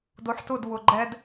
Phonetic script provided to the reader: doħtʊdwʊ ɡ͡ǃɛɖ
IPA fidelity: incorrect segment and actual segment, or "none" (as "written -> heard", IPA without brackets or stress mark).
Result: ɖ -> d